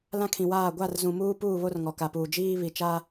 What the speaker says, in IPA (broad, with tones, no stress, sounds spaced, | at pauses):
l ã˦ kʰ ĩ˨ w aː˦˨ ɡʷ a˦˨ r z ũ˨ m uː˦ p uː˦˨ β o˦ r ŋ ɔ˨ k a˨ p uː˨ d͡ʒ iː˦ β i˨ t͡ʃ a˦